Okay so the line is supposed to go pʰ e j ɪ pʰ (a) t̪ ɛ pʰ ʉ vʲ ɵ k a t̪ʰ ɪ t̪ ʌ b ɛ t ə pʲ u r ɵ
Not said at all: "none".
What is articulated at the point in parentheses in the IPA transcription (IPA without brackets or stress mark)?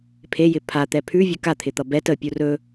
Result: a